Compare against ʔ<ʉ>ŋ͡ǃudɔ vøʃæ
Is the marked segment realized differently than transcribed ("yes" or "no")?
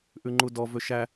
no